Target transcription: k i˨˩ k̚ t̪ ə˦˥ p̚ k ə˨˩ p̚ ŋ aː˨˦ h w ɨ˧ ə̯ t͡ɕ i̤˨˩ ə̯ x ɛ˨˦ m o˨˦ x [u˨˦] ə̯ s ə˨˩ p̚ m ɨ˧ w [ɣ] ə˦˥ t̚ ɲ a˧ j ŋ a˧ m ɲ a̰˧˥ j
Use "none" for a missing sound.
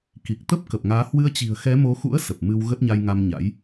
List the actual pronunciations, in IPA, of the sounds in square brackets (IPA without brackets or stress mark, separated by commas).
ṵ˧˥, ɣ